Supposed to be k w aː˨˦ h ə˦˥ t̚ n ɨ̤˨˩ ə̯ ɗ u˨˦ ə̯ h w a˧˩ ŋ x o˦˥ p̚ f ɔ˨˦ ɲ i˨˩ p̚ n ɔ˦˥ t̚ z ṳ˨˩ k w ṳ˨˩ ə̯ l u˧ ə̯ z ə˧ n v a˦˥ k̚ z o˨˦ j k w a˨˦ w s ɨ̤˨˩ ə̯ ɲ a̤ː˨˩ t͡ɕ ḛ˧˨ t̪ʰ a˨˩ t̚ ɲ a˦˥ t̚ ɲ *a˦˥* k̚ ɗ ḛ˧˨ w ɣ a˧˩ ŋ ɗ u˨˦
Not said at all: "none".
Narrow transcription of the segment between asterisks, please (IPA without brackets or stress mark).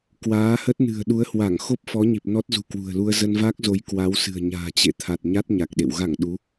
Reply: a˨˩